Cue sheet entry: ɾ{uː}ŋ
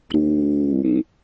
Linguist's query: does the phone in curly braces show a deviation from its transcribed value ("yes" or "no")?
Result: no